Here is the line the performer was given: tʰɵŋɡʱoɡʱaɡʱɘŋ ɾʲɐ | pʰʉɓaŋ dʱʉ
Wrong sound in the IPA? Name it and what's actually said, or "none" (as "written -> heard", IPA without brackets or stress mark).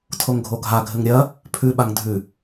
ɵ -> o